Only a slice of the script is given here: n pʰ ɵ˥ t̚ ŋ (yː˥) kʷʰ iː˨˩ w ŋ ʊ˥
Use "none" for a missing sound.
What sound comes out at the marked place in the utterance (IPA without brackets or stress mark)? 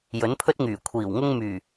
yː˨˩